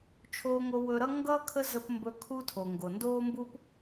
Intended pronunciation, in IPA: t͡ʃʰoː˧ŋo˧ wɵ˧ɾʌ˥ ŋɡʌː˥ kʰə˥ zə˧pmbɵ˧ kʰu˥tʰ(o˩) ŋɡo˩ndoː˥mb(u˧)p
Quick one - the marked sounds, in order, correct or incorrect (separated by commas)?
correct, incorrect